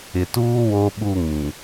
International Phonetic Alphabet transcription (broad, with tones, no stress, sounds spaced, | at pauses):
ɪ˨ t uː˦ w o˦ ɓ u˦˨ ŋ ĩ˨